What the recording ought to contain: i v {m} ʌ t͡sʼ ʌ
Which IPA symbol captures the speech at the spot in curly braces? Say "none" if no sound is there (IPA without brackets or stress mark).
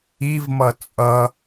m